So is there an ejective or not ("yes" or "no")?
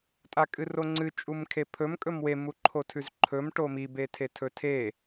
yes